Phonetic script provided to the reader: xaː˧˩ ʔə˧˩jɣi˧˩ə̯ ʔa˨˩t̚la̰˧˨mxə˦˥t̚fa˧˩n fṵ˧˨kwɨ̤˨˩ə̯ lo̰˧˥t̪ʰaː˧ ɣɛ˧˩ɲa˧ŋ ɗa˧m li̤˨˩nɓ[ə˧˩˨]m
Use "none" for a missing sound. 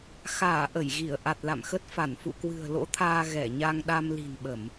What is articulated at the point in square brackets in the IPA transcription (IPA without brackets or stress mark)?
ə˧˩˨